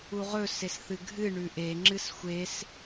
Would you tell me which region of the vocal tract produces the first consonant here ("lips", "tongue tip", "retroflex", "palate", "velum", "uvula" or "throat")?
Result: uvula